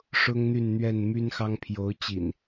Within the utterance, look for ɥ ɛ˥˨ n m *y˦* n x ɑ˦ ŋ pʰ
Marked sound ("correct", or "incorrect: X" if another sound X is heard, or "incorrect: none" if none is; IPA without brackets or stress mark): correct